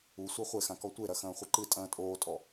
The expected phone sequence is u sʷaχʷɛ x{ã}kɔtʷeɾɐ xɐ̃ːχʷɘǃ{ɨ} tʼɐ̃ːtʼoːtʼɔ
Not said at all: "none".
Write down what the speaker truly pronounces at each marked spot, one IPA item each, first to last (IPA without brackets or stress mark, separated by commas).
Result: ã, ɨ